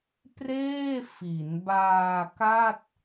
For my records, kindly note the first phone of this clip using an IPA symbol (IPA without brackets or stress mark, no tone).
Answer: p